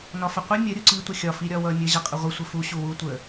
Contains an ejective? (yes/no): yes